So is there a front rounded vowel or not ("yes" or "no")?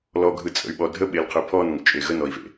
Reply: yes